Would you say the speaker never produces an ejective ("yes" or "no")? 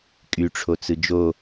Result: no